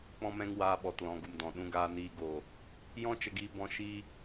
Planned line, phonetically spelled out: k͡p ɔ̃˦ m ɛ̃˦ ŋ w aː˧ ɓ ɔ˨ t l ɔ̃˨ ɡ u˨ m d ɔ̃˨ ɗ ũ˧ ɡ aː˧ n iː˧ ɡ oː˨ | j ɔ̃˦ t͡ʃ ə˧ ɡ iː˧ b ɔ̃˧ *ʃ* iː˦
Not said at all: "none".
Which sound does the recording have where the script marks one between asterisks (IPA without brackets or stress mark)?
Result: ʃ